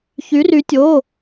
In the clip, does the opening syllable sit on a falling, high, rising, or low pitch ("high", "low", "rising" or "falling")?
rising